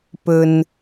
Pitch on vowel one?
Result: low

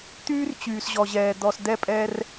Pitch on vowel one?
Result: high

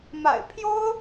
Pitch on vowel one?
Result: low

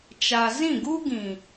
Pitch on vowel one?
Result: low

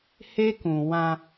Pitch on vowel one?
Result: high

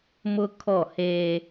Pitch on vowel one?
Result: high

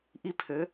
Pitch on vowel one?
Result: high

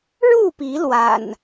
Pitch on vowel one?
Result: falling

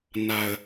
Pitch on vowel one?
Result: high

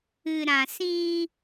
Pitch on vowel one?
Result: low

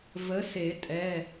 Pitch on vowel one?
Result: rising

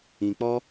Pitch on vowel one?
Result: low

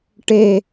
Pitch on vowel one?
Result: falling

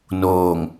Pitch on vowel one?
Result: low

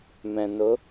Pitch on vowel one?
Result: low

